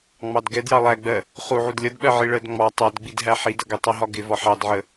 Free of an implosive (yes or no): no